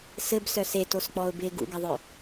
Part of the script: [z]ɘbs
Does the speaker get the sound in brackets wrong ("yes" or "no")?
yes